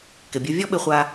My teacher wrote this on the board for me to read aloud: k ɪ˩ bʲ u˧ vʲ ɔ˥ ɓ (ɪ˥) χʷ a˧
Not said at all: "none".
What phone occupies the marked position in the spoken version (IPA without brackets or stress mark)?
ɪ˧